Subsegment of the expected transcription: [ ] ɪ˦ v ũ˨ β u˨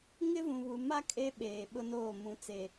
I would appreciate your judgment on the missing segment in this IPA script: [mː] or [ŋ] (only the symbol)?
ŋ